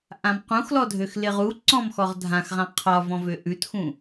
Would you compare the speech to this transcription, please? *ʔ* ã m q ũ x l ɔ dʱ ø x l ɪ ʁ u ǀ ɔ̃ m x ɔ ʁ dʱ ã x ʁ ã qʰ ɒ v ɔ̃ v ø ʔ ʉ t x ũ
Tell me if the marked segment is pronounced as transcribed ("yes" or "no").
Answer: yes